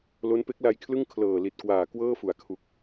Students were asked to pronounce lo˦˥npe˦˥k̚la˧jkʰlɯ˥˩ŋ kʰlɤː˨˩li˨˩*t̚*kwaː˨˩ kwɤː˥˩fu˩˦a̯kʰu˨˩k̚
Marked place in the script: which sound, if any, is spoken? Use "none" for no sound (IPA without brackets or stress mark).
t̚